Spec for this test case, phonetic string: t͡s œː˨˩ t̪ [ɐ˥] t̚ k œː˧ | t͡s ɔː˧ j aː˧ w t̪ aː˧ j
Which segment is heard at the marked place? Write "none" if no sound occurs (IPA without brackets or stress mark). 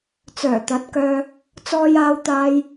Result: ɐ˨˥